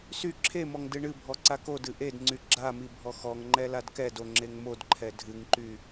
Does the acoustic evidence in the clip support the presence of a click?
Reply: yes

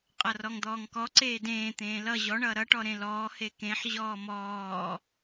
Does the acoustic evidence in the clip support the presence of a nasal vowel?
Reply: yes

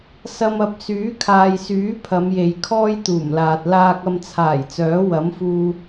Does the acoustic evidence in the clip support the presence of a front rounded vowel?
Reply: yes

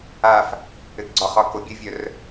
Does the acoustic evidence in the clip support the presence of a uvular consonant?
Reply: yes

